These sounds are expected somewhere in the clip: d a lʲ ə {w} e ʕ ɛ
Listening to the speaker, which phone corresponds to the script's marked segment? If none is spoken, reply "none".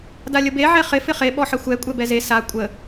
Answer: b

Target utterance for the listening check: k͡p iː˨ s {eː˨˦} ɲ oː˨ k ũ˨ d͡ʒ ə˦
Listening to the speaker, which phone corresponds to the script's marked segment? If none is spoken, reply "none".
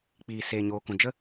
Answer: eː˨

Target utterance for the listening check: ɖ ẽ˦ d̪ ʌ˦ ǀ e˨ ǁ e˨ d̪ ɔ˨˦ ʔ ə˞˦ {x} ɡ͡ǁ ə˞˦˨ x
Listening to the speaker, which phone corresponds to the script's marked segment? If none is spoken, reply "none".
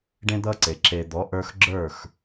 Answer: x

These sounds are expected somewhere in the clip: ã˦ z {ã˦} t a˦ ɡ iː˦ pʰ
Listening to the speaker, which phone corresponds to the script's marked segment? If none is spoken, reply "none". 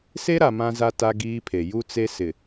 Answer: a˦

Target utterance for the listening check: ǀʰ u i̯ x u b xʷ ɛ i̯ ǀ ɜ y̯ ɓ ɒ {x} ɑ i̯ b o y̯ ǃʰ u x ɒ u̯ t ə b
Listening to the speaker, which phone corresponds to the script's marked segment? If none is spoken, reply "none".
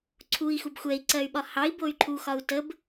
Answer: h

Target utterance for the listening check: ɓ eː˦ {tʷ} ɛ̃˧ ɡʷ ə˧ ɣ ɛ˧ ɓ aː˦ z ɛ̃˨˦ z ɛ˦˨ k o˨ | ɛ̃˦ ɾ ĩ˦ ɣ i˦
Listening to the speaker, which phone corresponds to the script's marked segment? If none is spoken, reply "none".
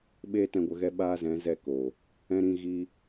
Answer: t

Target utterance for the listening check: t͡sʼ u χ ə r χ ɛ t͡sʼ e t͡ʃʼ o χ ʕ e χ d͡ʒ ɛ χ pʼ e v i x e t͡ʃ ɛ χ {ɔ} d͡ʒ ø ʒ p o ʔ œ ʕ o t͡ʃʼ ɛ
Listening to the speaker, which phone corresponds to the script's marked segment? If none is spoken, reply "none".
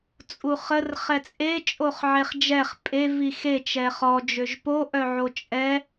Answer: ɔ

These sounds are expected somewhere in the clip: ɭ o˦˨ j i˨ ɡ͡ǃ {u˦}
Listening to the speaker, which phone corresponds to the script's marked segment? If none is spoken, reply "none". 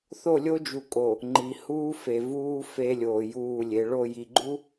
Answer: u˦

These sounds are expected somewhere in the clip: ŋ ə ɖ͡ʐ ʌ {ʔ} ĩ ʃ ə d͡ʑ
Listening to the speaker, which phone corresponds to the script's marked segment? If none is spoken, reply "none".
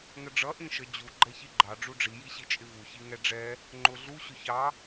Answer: ʔ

